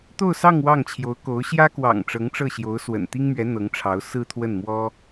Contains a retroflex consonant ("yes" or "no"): yes